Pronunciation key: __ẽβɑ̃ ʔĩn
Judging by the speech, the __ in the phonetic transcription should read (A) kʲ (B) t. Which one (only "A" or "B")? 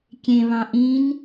A